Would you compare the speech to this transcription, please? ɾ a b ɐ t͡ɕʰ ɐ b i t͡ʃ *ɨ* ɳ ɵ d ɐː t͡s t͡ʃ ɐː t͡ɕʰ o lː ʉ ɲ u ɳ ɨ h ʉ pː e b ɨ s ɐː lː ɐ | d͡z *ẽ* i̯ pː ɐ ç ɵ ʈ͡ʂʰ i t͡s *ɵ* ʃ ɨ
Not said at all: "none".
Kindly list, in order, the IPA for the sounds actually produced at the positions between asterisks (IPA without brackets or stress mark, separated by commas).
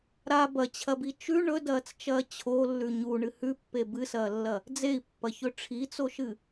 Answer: ʉ, e, o